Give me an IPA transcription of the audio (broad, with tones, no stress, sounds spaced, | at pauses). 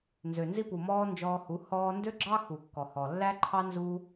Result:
n z ø˨ n z i˧ p u˨ m ɔː˧ n d͡ʒ ɔː˧ h u˨˦ h ɔː˧ n d ø˦ ɡ͡ǁ ɑ˦ x u˨ kː ɔ˨ h ɔ˨ lː æ˦ ǃʰ ɑ˦ n z u˦